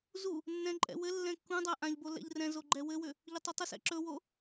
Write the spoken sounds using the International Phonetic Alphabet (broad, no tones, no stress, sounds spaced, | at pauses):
z u | nː ɛ̃ ǃʼ ɛ̰ w ɘ lː ɛ̃ kː ũ dˤ a ʔ ã ʎ b o l ɛ̰ ʎ r ɛ̃ z o ɡ͡ǃ ɛ w ɘ w ʏ | ʎ ɵ tˤ ɵ tˤ ʏ s ɛ̰ ǁ ɵ w o